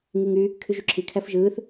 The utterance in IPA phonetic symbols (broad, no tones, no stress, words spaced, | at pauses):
ŋiŋy | kʰyʒyǁʰi kʰæfʒɯːθ